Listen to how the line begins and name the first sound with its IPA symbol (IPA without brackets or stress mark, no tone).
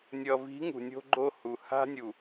nʲ